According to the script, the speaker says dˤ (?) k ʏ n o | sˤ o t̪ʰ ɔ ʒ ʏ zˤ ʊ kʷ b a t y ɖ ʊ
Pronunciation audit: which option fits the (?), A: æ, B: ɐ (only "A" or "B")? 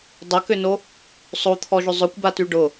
B